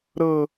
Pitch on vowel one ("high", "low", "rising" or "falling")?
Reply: high